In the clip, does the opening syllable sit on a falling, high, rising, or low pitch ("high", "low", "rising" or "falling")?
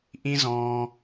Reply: high